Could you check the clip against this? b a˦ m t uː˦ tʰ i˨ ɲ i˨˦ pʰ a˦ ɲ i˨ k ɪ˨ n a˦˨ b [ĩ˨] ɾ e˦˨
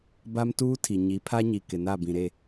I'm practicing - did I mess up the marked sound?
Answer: no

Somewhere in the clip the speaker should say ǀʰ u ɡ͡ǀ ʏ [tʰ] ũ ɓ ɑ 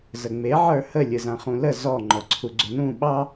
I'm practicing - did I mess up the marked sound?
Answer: yes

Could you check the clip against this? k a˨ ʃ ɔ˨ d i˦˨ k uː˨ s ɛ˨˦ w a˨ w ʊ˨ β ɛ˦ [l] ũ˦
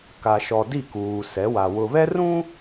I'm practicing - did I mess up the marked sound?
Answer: yes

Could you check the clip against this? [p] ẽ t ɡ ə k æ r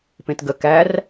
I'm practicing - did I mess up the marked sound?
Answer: no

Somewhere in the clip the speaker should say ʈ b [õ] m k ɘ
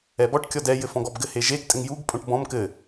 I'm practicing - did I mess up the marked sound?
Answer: yes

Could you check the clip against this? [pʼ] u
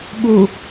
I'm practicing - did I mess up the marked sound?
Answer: yes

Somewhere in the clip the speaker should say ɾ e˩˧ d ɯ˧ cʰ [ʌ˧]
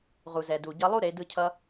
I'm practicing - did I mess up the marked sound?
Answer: no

